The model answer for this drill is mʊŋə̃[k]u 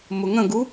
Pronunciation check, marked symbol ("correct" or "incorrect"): incorrect